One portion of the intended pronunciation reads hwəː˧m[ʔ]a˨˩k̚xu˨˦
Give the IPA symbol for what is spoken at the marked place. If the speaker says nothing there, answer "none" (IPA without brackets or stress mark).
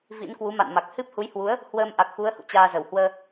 ʔ